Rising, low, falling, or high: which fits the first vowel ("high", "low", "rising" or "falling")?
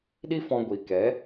high